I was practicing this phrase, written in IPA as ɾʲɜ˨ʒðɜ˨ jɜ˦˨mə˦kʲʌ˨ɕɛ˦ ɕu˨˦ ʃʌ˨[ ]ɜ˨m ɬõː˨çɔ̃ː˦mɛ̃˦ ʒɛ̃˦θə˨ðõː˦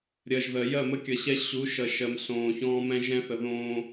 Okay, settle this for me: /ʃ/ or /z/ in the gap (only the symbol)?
ʃ